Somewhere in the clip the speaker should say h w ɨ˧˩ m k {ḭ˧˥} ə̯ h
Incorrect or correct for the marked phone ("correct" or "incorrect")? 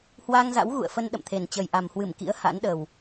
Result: correct